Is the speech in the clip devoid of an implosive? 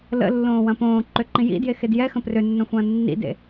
yes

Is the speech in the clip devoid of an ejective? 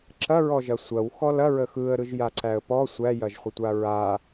yes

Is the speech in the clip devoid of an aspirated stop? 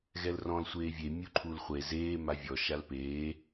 no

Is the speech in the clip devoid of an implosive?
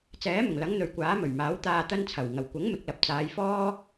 yes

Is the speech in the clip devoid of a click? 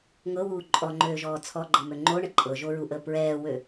no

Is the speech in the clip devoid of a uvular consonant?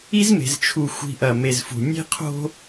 no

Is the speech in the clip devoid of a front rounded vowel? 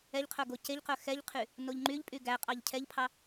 no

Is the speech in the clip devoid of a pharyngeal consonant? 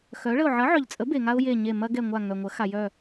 no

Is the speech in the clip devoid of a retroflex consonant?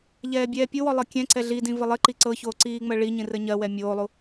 no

